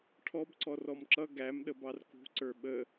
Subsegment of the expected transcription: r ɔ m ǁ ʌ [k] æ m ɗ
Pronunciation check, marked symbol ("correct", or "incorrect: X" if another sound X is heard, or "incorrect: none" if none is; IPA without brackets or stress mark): incorrect: ɡ